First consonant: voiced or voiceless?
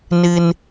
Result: voiced